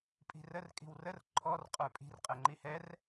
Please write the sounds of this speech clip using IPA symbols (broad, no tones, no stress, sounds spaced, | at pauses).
pʼ i̤ r ə r kʼ i̤ w r ə r ǃʰ ɔ r qʼ ə˞ pʼ i̤ r qʼ ɛ ŋ͡ǃ i h ɛ r